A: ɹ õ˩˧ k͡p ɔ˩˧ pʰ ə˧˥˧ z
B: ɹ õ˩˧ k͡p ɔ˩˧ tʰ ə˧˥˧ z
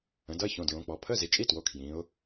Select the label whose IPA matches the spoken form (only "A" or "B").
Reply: A